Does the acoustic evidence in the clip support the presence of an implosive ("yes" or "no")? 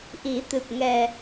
no